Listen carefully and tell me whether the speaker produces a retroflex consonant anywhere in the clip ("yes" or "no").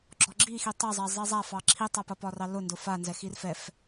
no